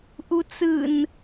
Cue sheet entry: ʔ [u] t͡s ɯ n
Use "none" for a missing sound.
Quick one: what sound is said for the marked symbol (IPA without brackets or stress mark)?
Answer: u